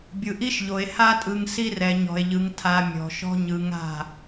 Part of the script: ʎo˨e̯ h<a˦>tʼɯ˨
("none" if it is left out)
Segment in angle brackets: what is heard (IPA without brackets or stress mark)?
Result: a˦